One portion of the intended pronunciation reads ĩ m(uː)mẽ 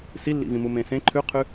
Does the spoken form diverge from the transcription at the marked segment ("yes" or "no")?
yes